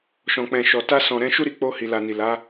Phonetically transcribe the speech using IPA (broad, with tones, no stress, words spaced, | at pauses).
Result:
ʃɔ̃˨k͡pɛ̃˨ʃɔ˨ ta˧sɔ̃˨ ɾɛ̃˧ʃu˦ɾi˧k͡po˧ hi˨la˨ni˨ la˨˦